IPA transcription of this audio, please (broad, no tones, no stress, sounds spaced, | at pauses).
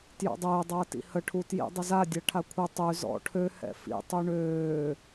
t j ɔ̰ dˤ ɪː dˤ ɐː t ḭ h ə ʈʰ u t j ḭ dˤ ʊ z a dʲ a ʈʰ a kʷʰ ɪ tˤ y z ɔ̰ ʈʰ ø h ɛ̰ f ḭ tˤ y ɳ øː